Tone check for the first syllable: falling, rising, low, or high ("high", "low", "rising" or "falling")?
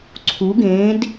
rising